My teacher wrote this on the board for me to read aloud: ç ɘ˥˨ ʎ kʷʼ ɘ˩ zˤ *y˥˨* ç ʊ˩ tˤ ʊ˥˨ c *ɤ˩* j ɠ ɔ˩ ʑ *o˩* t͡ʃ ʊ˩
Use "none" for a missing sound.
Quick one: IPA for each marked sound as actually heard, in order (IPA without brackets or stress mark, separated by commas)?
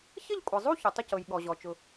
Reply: u˥˨, ɤ˩, ɔ˩